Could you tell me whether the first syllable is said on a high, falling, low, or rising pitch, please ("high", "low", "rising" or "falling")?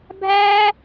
high